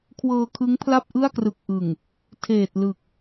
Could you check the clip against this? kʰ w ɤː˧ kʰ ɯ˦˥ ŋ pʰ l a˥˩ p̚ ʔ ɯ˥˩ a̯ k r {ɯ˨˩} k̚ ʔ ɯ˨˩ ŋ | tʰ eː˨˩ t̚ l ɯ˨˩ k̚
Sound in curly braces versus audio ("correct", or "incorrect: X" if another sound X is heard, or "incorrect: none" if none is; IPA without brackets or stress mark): correct